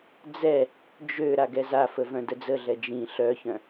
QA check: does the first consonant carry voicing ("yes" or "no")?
yes